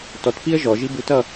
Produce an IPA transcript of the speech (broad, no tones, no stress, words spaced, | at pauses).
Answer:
tɔtpiə̯ ʒɔʒi butʌ